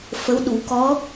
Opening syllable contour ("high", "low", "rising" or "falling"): rising